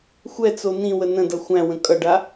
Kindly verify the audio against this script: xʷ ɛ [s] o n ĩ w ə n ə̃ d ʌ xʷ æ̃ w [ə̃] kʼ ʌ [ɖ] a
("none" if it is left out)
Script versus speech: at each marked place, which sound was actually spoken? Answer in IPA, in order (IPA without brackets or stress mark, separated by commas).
t͡s, ə̃, ɖ